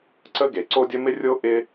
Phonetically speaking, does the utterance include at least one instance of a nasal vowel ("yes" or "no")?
no